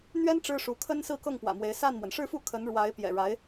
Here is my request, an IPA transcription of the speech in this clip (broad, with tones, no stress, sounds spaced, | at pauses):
n̪ ɥ ɛ˥ n ʈ͡ʂ ɻ̩˥ ʂ u˧˥ kʰ ə˥ n s ɹ̩˥˧ k ɤ˥˩ ŋ p w ä̰˨˩ m w e˧˥ ɪ̯ s a˥˩ n m w ə˩ n ʂ ɻ̩˥˧ f u˥˩ kʰ ə˧˥ n ɻ w a˧˥ ɪ̯ p j ɛ̰˨˩ ɻ a˧˥ ɪ̯